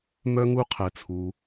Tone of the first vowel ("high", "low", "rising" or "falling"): high